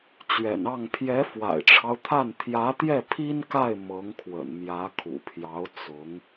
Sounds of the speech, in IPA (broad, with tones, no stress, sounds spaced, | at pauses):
t͡ɕ ɥ ɛ̰˨˩ n ɑ˥˩ ŋ pʰ j ɛ˧˥ f w a̰˨˩ ɪ̯ ʈ͡ʂʰ ɑ˦ ʊ̯ t̪ʰ a˥˩ n t̪ʰ j ä˧˥ t̪ j ɛ˥˩ pʰ i˥ n k a˥˩ ɪ̯ m ɤ˧˥ ŋ kʰ w ə̰˨˩ n m j ä˧˥ kʰ ṵ˨˩ pʰ j ɑ˧˥ ʊ̯ t͡s ʊ˧˥ ŋ